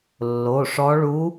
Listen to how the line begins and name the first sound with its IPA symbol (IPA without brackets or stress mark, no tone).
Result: lː